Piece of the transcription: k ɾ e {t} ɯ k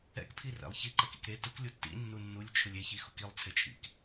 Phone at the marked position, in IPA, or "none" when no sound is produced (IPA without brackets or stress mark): t